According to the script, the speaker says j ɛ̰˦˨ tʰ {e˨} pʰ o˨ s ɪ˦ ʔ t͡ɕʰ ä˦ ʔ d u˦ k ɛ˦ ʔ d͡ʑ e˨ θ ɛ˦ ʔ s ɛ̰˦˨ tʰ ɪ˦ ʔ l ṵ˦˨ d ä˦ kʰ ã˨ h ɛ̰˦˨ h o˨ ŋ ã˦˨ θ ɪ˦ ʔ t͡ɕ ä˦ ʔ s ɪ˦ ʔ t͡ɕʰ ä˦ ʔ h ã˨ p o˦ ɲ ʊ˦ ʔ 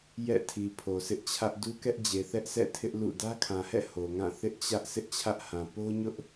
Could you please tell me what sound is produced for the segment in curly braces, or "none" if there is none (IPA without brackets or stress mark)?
i˨